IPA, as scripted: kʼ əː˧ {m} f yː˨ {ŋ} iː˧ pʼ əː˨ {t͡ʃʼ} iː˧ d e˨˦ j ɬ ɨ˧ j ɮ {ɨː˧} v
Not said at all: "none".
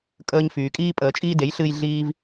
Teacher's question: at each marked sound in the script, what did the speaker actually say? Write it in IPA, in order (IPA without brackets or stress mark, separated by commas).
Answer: ɲ, kʼ, t͡ʃʼ, iː˧